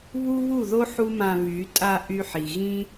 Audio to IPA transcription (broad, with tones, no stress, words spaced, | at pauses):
βu˦βu˦˨ðo˦ ħu˦mã˧βy˨˦ tʼa˧ ʔy˦ħi˨ ɣĩ˦